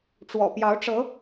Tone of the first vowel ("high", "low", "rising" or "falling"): low